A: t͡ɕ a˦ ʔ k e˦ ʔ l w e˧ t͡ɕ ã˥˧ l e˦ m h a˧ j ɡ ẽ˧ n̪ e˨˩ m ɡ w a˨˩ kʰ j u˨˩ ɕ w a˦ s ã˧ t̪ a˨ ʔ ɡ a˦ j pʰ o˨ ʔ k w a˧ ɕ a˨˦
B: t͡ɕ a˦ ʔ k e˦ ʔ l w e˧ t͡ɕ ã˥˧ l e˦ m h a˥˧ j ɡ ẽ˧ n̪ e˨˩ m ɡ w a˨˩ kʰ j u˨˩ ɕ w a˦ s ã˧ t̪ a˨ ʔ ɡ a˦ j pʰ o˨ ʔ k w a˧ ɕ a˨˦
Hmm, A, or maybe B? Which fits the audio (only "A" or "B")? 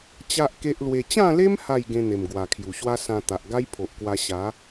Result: B